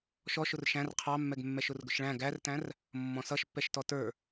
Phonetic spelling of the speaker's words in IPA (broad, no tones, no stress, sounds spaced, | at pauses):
ʃ ɔ ʃ ʊ r ʃ æ̃ r qʰ ɑ mː ɛ ɡ mː ɛ ʃ ʊ r ɡ ʊ ʃ ɭ æ̃ ɡ æ r t æ̃ r | mː ɔ̃ s ʌ ʃ pː ɛ ʃ t ɔ t ə˞